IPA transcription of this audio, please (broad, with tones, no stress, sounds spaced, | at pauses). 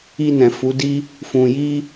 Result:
i˧ n ɛ̃˨ f u˨˦ d i˦ | f ũ˧ j i˦